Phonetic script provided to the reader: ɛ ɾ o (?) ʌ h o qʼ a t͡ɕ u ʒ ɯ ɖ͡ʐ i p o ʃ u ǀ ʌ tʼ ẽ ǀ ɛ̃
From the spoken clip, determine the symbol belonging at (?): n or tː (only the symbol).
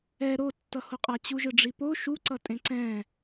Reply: tː